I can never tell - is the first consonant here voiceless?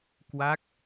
yes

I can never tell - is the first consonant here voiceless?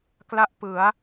yes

